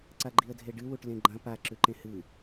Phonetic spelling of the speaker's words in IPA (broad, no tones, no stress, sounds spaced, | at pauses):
ǀ a ɡ͡ǃ i ə̯ dʱ e ɖ ɨ w u ʈ l ẽ ɡ͡ǃ ɐ̃ p a ǁ ʉ ǃ ẽ h ɨ